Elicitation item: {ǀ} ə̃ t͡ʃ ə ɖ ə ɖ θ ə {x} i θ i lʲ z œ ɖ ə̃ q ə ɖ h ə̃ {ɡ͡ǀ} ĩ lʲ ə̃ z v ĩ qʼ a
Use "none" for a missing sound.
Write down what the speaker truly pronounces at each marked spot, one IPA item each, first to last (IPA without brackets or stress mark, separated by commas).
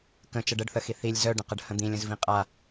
k, x, d̪